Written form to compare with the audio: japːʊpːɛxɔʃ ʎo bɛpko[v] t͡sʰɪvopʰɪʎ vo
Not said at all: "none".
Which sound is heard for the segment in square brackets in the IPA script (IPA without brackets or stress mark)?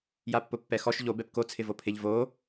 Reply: none